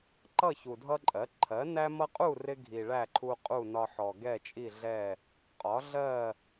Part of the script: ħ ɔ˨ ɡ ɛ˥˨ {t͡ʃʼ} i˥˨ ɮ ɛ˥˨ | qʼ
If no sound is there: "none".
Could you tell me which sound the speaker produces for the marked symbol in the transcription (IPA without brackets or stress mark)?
t͡ʃʼ